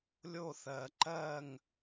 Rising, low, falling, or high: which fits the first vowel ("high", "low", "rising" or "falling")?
falling